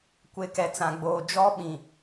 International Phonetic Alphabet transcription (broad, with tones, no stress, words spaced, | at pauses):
kʷe˨kɛ˨t͡sã˨ɡ͡boː˨ d͡ʒɔ˦ɓĩ˨